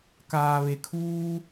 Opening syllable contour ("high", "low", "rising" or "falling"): low